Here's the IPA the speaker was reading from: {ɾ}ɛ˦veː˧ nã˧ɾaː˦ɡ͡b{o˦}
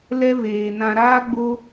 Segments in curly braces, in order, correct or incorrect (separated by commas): incorrect, correct